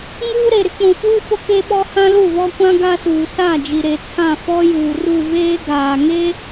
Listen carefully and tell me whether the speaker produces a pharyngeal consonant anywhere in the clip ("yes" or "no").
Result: no